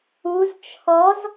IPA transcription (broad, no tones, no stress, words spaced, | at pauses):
uz t͡ʃʰɔz